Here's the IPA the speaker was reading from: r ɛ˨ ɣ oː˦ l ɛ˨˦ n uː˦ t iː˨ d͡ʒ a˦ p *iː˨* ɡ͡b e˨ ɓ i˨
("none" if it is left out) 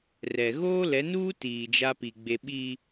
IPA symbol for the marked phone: i˨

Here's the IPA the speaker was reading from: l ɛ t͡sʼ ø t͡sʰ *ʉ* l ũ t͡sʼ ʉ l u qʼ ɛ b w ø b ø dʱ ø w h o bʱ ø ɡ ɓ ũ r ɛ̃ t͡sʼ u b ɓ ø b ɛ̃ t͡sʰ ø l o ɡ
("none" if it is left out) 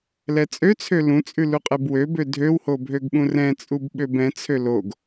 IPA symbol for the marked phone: ø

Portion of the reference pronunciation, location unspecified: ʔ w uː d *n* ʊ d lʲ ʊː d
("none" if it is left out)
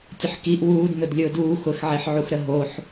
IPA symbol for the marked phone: n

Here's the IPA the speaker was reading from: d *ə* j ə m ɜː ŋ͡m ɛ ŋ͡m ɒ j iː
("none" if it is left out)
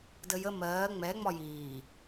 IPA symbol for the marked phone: ə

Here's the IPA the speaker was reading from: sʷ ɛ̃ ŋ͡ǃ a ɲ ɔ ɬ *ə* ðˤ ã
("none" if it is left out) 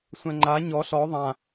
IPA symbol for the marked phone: ɔ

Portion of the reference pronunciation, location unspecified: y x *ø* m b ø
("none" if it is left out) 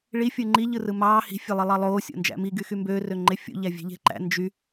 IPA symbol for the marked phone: y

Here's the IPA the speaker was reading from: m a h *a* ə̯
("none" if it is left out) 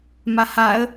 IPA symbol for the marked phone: a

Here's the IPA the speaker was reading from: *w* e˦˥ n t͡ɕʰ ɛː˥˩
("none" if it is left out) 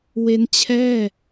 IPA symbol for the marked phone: w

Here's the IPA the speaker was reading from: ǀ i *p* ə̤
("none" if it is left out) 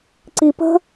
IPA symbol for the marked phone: p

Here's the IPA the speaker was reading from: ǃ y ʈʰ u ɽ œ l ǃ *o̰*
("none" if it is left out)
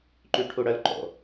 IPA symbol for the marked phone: o̰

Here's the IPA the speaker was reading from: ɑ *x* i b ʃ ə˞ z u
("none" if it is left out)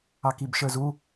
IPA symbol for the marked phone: k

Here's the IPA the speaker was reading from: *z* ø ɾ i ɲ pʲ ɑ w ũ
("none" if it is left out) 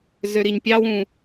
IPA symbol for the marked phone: z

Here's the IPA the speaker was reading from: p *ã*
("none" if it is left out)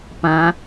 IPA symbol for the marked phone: ã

